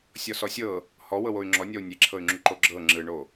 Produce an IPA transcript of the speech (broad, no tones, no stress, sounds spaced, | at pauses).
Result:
sʲ ɔ s ɔ sʲ ɤ | h ɔ w ɤ w o y̯ ŋ͡ǁ ɔ nʲ ɔ u̯ nʲ e ǁʰ ɤ y̯ ŋ͡ǁ u ǃ o ɡ͡ǁ ɤ ŋ͡ǁ ɯ ɳ o